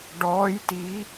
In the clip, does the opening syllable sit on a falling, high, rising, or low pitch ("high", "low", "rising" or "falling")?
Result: rising